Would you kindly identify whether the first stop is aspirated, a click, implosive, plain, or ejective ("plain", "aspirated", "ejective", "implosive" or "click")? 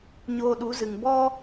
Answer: implosive